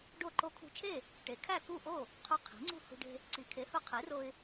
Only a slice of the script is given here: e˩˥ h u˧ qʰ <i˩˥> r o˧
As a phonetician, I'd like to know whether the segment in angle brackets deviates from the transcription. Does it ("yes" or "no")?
no